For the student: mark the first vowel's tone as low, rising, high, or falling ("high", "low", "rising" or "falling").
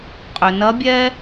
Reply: low